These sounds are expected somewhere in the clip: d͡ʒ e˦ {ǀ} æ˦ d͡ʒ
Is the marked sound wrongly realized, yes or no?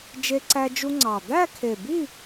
no